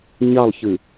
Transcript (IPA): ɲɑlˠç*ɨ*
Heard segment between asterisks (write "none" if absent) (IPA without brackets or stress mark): ɨ